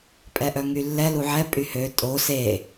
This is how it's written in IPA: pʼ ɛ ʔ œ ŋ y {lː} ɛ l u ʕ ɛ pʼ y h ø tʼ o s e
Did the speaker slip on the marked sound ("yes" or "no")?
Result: no